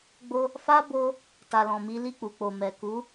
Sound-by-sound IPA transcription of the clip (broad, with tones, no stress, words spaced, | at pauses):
ɡ͡bo˧ | fa˦bo˧ | ta˨lɔ̃˨mi˨˦ li˦˨k͡pu˨k͡po˨ mɛ˨ ku˨˦